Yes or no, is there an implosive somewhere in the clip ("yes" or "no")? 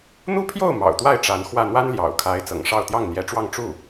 no